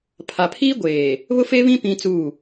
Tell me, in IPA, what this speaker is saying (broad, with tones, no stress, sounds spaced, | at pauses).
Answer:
pʰ a˨ pʰ iː˦ ɡʷ eː˨ | β ʊ˦ f e˦ β ĩ˦ p ĩ˦ t͡s uː˦˨